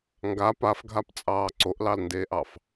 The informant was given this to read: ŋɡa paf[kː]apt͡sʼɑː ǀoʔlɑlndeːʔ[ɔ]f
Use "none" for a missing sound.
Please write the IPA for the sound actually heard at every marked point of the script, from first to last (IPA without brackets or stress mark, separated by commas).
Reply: ɡʱ, ɑ